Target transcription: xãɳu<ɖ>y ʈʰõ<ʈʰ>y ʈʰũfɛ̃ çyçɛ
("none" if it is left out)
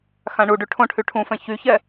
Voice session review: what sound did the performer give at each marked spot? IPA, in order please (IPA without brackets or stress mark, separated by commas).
ɖ, ʈʰ